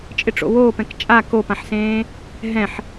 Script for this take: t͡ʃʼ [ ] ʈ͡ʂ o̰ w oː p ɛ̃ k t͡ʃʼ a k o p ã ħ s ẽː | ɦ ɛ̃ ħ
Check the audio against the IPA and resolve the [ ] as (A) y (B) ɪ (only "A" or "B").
B